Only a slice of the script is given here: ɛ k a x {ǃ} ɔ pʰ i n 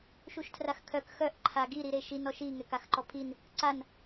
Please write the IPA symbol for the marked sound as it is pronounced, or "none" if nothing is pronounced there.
ǃ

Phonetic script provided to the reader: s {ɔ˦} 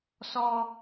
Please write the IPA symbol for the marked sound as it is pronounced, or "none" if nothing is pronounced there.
ɔ˦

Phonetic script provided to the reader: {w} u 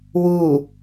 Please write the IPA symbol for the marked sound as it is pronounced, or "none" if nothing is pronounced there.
w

